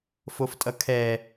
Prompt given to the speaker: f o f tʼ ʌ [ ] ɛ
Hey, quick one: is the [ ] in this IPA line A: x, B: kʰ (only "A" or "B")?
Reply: B